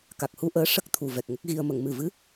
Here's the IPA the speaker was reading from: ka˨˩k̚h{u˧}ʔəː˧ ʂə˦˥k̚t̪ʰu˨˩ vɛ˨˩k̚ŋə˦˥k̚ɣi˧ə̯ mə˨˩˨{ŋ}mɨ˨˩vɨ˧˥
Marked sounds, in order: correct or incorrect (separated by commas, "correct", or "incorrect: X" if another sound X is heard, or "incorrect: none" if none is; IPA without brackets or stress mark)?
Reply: correct, correct